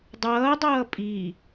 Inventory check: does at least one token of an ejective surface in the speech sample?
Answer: yes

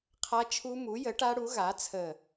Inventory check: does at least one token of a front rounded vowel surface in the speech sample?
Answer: no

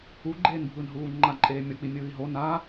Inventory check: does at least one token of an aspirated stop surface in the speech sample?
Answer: no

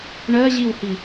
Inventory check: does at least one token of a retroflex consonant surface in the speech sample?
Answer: yes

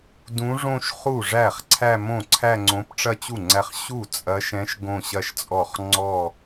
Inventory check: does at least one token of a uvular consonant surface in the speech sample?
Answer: yes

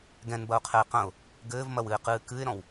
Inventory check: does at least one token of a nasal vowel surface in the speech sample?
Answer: yes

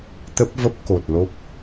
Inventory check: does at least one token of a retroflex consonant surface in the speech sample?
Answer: no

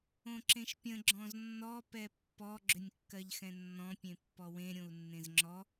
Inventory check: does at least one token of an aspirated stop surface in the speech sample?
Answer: no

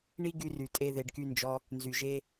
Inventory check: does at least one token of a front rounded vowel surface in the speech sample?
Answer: yes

